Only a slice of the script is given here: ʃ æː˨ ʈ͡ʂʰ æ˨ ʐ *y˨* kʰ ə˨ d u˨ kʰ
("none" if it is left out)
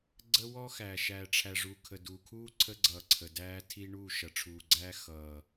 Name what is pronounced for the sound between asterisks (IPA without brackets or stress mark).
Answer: u˨